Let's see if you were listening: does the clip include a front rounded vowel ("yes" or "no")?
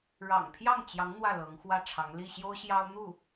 no